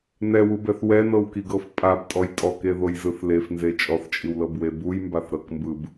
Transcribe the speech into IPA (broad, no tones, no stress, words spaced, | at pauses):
nɛwubɛθ wɛnɤwkiɡɤf pʼabtʼɔj tʼɔkeðojzɯθ lefnze t͡ʃʼɔθt͡ʃʼiwlɤbwe bujmbaθɾɤkmbɯb